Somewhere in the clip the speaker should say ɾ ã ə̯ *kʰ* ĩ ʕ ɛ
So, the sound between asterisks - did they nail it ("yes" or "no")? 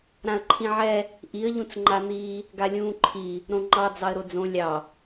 no